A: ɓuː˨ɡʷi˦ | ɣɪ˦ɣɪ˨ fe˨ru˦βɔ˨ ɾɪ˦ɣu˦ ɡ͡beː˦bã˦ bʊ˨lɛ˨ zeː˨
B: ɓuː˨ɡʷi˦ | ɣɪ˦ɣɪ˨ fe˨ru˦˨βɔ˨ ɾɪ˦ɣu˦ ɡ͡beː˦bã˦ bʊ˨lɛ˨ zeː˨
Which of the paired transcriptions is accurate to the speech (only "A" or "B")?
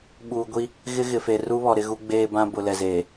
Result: A